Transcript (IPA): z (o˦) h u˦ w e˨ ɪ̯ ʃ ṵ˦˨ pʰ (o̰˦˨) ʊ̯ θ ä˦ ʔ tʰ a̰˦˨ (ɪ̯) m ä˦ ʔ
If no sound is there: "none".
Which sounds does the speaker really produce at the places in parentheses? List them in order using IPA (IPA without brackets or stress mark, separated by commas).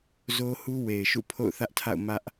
o˦, o̰˦˨, ʊ̯